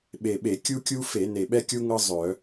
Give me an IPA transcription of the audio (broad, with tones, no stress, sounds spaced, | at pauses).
ɓ e˨˩ ɓ e˧˩˧ kʲ u˥ kʲ u˥ f e˧˩˧ n e˨˩ ɓ ɛ˥ kʲ u˥ ŋ ɤ˥ zˤ œ˧˩˧